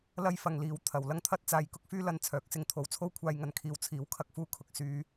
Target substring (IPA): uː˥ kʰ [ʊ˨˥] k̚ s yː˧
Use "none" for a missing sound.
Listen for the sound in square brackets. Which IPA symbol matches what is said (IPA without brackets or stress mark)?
ʊ˨